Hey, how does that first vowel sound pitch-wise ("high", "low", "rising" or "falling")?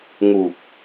low